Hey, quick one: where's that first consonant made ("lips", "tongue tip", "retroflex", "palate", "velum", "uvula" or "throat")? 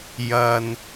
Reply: palate